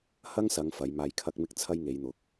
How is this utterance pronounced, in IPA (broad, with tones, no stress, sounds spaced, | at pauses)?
h ɐ˥ ŋ s ɐ˨˧ ŋ f ɐ˨˧ j m aː˧ j kʰ ɐ˥ k̚ m ɪ˥ k̚ t͡sʰ ɐ˥ j ŋ e˨˧ j n̪ ʊ˨˥ k̚